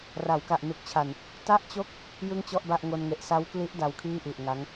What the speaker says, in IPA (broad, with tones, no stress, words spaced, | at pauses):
ra˩˦wka˨˩ʔ nu˨˩k̚t͡ɕʰa˨˩n | ta˥˩ʔt͡ɕo˥˩k̚ | jɯ˥˩ŋt͡ɕɔ˥˩ʔba˥˩ʔ ŋo˧nŋe˨˩ʔ sa˦˥wkli˦˥ʔ da˧wkʰiː˥˩ʔi˨˩ʔŋa˦˥ŋ